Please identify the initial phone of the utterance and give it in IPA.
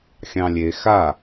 xʲ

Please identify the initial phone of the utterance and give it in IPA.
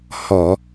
h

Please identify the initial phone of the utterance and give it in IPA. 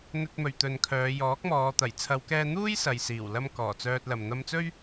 n̪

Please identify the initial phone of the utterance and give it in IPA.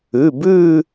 ʉ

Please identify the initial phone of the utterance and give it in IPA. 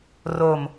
r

